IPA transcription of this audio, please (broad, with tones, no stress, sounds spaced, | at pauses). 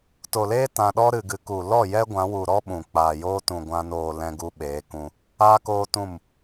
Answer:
t o˨ l eː˦ t ã˧ ɗ ɔ˦ ɾ ɨ˨ ɡ ɨ˨ k u˨ l ɔ˦˨ j ɛ˦ ɡʷ ã˨˦ w u˨ ɾ ɔ˦ ɓ ũ˨ k͡p aː˨ j oː˦ t ũ˨ ɡʷ ã˧ n oː˨ l ɛ̃˧ ɡ u˧ ɓ eː˨˦ k ũ˧ | aː˦ k oː˦ t ũ˦˨ m